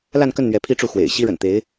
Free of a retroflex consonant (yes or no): no